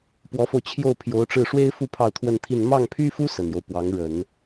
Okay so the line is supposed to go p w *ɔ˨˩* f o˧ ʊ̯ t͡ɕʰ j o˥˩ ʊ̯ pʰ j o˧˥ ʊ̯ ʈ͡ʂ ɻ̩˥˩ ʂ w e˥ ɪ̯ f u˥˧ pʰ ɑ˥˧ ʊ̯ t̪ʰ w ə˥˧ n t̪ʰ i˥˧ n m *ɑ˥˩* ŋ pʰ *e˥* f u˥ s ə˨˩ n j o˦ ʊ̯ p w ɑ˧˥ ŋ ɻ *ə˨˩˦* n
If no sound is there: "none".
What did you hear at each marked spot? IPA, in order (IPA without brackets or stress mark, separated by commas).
ɔ˧˥, ɑ˥˩, y˥, ə˨˩˦